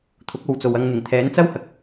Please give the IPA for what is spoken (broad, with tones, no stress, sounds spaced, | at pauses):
t̪ʰ ʊ˨˥ k̚ o˨˧ w t͡s o˨ w ɐ˧ ŋ n̪ ɪ˨˩ ŋ t̪ʰ ɛː˨˥ n t͡s ɐ˥ w h ɐ˨˥ k̚